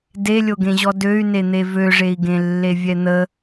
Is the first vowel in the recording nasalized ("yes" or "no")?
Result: no